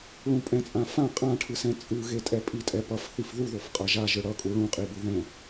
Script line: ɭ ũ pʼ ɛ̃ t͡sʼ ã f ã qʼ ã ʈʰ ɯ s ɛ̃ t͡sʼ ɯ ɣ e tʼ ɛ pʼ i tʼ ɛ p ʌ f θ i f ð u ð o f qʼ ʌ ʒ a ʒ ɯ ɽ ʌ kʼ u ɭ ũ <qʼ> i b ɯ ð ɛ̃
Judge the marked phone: correct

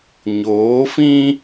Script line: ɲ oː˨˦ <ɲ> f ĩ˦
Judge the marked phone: incorrect: none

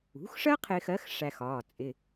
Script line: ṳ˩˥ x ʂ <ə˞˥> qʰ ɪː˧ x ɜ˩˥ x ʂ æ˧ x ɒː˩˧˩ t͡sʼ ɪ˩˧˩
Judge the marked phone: incorrect: ɜ˥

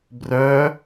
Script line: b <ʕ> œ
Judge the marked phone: incorrect: r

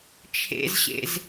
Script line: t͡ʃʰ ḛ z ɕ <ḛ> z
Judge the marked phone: correct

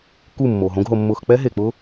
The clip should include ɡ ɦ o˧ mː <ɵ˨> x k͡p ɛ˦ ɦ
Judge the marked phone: incorrect: ʊ˨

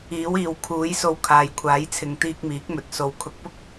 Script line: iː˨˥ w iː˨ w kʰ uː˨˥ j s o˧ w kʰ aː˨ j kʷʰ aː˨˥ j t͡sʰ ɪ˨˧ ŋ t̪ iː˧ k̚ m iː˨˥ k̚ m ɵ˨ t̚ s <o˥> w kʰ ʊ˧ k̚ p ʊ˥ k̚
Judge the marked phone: incorrect: o˨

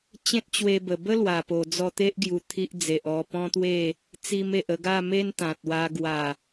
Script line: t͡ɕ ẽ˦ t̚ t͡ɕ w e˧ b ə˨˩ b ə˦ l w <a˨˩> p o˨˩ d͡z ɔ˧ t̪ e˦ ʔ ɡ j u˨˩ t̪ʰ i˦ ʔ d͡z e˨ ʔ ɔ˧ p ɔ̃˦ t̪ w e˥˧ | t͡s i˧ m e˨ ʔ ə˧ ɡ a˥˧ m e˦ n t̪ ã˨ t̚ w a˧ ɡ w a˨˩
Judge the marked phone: correct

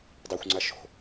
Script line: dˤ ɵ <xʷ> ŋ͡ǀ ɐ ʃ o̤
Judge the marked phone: correct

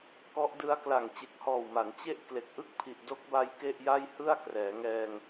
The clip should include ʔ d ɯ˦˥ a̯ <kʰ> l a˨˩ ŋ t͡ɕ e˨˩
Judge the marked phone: incorrect: k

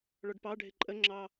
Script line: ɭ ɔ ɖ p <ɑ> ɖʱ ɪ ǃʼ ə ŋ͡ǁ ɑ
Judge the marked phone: correct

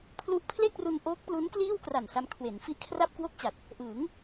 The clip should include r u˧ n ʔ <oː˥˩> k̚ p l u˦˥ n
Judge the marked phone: incorrect: oː˦˥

